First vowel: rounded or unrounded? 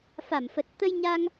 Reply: unrounded